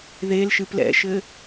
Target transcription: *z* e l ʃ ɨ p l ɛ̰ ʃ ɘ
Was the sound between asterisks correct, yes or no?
no